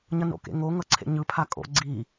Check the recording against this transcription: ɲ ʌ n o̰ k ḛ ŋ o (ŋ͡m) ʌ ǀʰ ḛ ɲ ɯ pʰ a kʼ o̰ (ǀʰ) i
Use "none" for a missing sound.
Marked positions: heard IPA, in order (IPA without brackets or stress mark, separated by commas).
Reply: ŋ, ɡ͡ǀ